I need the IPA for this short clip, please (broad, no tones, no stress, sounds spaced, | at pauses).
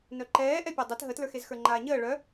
n œ ǃ ɛː ʔ ɛ pʲ ə˞ dˤ e t ɦ ə t l ə˞ x e z x ə˞ ŋ͡ǃ aː ɲ əː ɭ œ